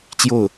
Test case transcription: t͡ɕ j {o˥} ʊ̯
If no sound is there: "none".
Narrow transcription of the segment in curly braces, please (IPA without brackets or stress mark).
o˥˩